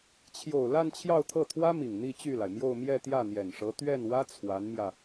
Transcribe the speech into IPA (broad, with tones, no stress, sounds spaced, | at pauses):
t͡ɕʰ j o˨˩ ʊ̯ l a˥˧ n t͡ɕʰ j ɑ˥˧ ʊ̯ t̪ʰ ɤ˥˩ t̪ʰ w ä˥ m i˨˩ ŋ n̪ i˥˧ t͡ɕ y˥˩ l a˩ ɪ̯ m j o˥˧ ʊ̯ m j ɛ˥˧ t̪ j ä˥˩ n̪ j ɛ˨˩ n ʂ ɤ˧˥ t̪ ɥ ɛ˥˩ n w ä˥ t͡sʰ w a˧˥ n m j ä˧